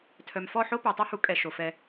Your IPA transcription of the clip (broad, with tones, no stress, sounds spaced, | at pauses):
tʰ œ˨ m f ɔ˦˨ ħ o˦ p ø˨ tˤ a˦ h u˨˦ kʼ ɛ˨ ʃ o˨ f ɛ˧